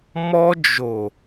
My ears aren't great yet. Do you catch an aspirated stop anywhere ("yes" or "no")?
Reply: no